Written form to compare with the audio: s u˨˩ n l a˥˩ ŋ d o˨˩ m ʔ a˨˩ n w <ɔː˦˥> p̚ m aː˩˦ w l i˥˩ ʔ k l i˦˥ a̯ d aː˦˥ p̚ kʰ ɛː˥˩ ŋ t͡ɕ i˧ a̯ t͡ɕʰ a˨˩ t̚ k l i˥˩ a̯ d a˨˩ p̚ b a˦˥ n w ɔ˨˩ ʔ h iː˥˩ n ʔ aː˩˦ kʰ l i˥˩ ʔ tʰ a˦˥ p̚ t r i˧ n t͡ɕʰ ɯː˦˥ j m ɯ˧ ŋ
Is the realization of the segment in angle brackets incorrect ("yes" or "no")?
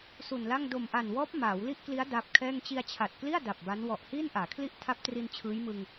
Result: no